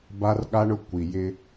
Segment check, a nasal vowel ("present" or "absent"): absent